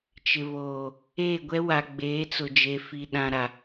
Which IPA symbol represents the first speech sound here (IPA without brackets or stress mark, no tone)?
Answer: t͡ʃ